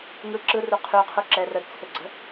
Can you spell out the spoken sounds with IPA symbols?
ŋ ɯ ǁ ɯ r u qʰ y qʰ u ǁ ɛ r ə d t͡sʰ ʏ ɡ͡ǀ ə̤

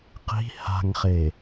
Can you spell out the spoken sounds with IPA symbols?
q i̤ h a̤ ŋ χ e

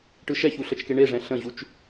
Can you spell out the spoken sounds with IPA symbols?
ʈ ɯ ʃ ɛ ç u ɬ ə t͡ʃ k e ɳ e ʐ ɛ̃ ɬ ə̃ ʑ u t͡ʃ

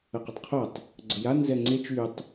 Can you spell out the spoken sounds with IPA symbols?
ə q ø tˤ qʰ o tˤ | ɡ͡ǀ ə j a n z ɛ ŋ͡ǀ e t͡ʃ y tˤ

